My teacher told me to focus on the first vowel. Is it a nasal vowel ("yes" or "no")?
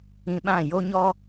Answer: yes